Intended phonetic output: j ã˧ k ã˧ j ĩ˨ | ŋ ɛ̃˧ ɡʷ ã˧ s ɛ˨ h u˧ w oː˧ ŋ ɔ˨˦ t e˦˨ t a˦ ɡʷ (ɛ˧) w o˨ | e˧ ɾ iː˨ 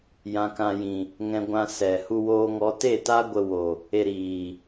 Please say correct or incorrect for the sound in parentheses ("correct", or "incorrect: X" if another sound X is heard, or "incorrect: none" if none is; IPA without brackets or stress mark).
incorrect: ə˧